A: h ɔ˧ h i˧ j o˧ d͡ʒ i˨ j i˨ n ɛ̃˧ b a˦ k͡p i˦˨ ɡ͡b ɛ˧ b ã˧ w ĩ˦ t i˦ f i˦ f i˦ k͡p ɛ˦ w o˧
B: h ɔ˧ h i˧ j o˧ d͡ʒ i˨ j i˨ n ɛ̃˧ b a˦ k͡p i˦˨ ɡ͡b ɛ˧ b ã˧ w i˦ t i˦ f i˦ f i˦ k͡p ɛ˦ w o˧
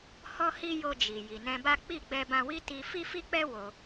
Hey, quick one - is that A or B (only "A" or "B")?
B